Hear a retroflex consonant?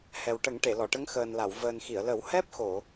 yes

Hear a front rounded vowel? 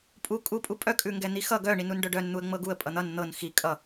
yes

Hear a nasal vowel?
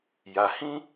yes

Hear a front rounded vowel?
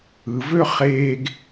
yes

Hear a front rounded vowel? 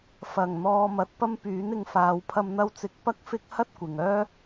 yes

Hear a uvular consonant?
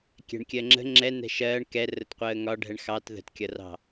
yes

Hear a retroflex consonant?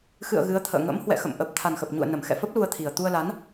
no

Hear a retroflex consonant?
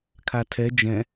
no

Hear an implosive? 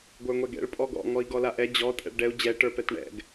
no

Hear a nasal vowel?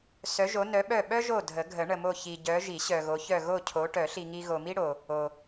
no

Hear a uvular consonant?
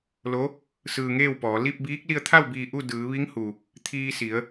no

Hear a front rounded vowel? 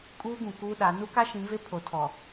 no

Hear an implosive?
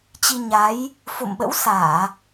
yes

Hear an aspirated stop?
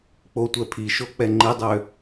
yes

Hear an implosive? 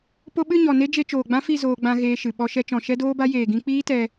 yes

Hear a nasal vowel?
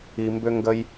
no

